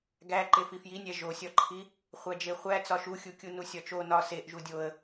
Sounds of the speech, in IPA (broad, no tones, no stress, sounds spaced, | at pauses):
ɡ æ ǃ e f i f j i nʲ æ ʒ o sʲ ɒ ǃʰ i | χʷ æ d͡ʒ e χʷ æ t͡s ɒ ʃ u xʲ u kʲ u n u sʲ ɒ t͡ʃ o n ɒ s e ʔ ʒ u dʲ o ə̯